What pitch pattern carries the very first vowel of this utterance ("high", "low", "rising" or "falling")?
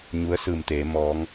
rising